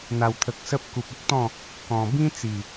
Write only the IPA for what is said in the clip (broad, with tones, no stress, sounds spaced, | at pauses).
n̪ a˨˩ w t̪ʰ ə˨ k̚ s ə˦ p̚ k u˨ p̚ ə˦ k̚ t̪ ɔ̃˥˧ | k ɔ̃˨˩ b ĩ˦ t͡s i˨˩